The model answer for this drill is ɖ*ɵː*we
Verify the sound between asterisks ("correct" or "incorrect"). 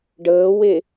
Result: incorrect